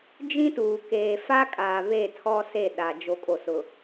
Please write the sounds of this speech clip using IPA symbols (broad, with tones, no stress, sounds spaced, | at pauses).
d͡ʒ ĩ˦ t uː˨ k eː˨ f a˦ kʼ aː˨ β e˦˨ tʰ ɔ˦ s e˦˨ ɗ a˨ d͡ʒ o˨ kʼ o˨ s ʊ˨